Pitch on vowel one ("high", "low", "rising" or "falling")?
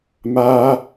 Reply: high